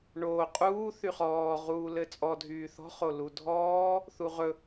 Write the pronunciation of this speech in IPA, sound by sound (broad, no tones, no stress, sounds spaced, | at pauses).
ɳ oː qʼ uː θ y χ ɔː ʁ uː l ɘ t͡sʼ ɔ dʱ yː θ ɔ̤ χ o l u dʱ ɔː | θ u ʁ ɵ